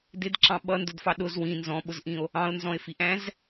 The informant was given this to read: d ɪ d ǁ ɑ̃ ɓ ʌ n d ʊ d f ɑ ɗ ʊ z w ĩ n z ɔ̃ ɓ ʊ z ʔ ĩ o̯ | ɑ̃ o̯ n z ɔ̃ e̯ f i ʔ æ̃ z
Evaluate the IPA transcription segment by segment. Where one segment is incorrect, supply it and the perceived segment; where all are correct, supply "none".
none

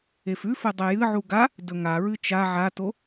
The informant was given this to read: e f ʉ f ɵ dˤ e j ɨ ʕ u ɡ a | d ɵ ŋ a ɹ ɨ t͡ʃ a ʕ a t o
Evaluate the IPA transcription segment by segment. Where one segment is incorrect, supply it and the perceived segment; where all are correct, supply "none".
none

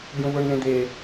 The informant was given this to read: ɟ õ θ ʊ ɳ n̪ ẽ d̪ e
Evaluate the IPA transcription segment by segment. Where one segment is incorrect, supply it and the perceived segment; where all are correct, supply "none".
θ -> β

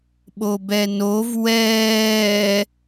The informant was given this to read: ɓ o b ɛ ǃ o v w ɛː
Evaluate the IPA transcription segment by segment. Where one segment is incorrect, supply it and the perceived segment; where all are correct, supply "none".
ǃ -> n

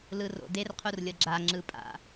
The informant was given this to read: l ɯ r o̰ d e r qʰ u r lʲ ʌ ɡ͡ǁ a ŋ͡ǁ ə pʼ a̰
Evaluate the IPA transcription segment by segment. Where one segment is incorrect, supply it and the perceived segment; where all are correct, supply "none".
ə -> ɯ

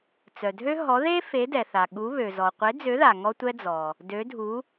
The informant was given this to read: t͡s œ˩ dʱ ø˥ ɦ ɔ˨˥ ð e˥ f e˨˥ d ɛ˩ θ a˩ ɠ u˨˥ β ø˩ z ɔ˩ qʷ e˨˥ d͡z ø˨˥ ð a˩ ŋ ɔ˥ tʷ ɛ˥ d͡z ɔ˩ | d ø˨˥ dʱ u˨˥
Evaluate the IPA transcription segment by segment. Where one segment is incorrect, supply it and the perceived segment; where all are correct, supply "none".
none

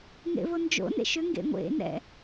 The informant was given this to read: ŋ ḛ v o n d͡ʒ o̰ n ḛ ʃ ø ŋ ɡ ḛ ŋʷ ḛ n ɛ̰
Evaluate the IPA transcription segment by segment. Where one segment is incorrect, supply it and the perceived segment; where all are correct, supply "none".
none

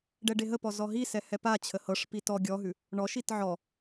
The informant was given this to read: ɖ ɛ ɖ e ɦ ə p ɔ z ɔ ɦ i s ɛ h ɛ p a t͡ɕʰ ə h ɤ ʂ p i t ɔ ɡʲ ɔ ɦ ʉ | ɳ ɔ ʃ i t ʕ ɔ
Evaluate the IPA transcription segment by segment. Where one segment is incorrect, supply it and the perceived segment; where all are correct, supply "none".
none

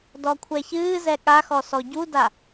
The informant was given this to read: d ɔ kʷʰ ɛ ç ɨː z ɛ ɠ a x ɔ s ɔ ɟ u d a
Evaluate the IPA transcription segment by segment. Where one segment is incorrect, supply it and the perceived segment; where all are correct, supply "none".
none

